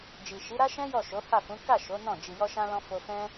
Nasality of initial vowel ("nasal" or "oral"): oral